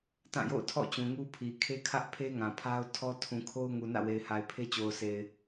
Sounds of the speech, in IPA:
tã˦˨jo̰˦˨ʊ̯ tʰɔ̰˦˨ t͡ɕũ˨ŋu˦pʰi˨ kʰe˦kʰä˦ʔ pʰe˦ŋã˨ pʰa˦ʊ̯tʰɔ˦ tʰũ˨kʰo˦ʊ̯ ŋu˨nä̰˦˨we˨ɪ̯ha˨ɪ̯ pʰe˦t͡ɕo˨ʊ̯se˨ɪ̯

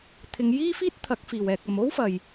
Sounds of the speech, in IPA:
t̪ʰɪ˨˧ŋjiː˥fiː˥t̚ t̪ʰɐ˨˥k̚fiː˨˩w ɛː˨k̚ɐ˨mo˥w fɐ˨j

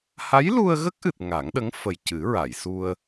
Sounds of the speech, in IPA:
ha˧˥jlu˧ə̯ɣə˦˥k̚ʔɨ˨˩t̚ ŋa˨˩˦ŋɗə˧˥ŋfə˨˩j cɨ˨˩˦ɹa˨˩˨j su˧ə̯

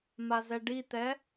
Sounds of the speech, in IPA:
mazɛɖit̪ɛ

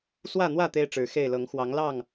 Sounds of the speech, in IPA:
swä˥˨n̪wä˥˨ t̪e˦ɪ̯ʈ͡ʂɻ̩˨˩ xe˥˨ɪ̯lɤ˨˦ŋ xwɑ˨˦ŋlɑ˥˨ŋ

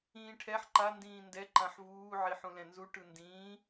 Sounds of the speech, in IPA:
ĩːʈʰɛħ ǃa ndĩːndɛ ǃãħvuː ʕiħũlɛ̃nzu ʈɯndĩː

